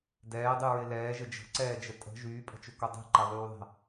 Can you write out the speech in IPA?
d ɛː dˤ y ɹ ɪ l ɛː ʒ ə d͡ʒ ə̤ ǀ ɛː d͡ʒ ə tʼ ə̤ ʒ yː pʼ ə̤ t͡ʃ ʏ k o dˤ i̤ ǃ ɛ ðˤ yː ðˤ ɛ̤

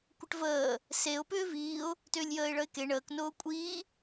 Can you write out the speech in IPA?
kʷ ə ʈ v əː | s e ʊ̯ p ʏː v iː ʊ̯ | t ʏː lʲ j əː ɪ̯ ɭ ə ɪ̯ k e ɳ əː k n ʊː kʷʼ iː

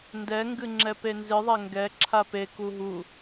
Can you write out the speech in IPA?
n d ɛ ŋ ɡ ɨ ŋ͡ǁ ɛ p e n z ɨ ðˤ ɛ ŋ ɡ ɛ ǁʰ a p e k u ɦ u

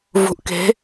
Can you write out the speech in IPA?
v ṳ˩˥ ʔ k e̤˩˥

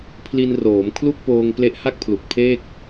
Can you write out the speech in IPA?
pʰ l i˧ n r oː˩˦ m kʰ l u˥˩ k̚ p oː˧ ŋ p l e˦˥ ʔ h a˥˩ k̚ pʰ l u˨˩ k̚ pʰ eː˥˩ k̚

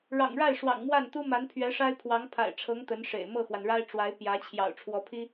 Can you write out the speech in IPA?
ɻ ɑ̰˨˩ ŋ ɻ a˥˩ ɪ̯ ʂ w ɑ̰˨˩ ŋ m w a˥˩ n t̪ u˥ m a˧˥ n pʰ ɥ ɛ˧˥ ʂ a˥ ɪ̯ pʰ w ɑ˧˥ ŋ pʰ a̰˨˩ ɪ̯ ʈ͡ʂʰ ɤ˧˥ ŋ t̪ ə˧˥ n ʂ ḛ˨˩ ɪ̯ m ɤ˥˩ x w a˩ n ɻ a˥ ɪ̯ ʈ͡ʂ w a˧˥ ɪ̯ p j ä˧˥ t͡ɕʰ j ɑ̰˨˩ ʊ̯ ʈ͡ʂʰ w ɔ˧˥ pʰ i˥

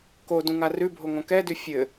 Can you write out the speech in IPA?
k o d ũ ŋ a r ʉ bʱ o ŋ õ k ɛ d ʉ fʲ ɘ

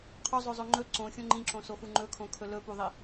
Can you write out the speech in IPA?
qʰ o zˤ ɵ zˤ ɵ ŋ͡ǃ ɵ ǀ õ xʲ õ ŋ͡ǃ ĩ ǁ õ s o x u ŋ͡ǃ ɵ kʰ õ kʰ ɵ l ɵ p u ðˤ i

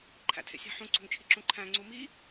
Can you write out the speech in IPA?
ǃʰ æ̰ tʰ ḛ sʲ æ̤ ħ ũ ǀ o̤ ŋ t͡ʃʰ i ǁ ũ ǃʰ æ̃ ŋ͡ǀ u m i

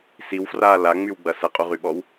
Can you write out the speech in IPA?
s i w f r aː l a ŋ͡m y w ɡ͡b ɐ s ɐ qʼ u ʁ y ɓ ɔ w

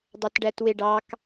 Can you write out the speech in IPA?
dˤ æ t ɖ æ t w e ɖ ɑ k

